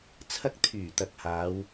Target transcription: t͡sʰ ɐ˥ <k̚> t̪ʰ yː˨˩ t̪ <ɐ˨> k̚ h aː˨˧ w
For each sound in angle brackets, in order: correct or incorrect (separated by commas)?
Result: correct, correct